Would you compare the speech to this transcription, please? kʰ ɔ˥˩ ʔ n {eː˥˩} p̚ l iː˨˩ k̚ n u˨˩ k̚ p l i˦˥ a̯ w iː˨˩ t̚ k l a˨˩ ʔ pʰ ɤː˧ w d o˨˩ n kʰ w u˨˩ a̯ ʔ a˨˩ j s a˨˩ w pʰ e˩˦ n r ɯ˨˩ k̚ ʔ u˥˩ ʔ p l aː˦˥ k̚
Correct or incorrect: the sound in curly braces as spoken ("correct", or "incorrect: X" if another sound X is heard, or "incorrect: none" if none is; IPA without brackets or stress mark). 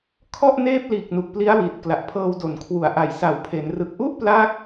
correct